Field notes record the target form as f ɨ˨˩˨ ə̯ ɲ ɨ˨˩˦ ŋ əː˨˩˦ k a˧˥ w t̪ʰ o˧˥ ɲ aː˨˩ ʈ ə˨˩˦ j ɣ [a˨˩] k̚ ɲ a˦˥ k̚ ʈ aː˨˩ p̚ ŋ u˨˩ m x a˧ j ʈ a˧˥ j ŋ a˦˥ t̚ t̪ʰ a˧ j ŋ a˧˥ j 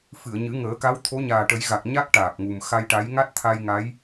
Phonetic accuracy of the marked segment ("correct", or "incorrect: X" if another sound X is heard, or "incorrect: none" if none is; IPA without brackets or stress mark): correct